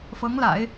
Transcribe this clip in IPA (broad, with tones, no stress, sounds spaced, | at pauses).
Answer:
f ɤ˧˥ ŋ l a̰˨˩˦ ɪ̯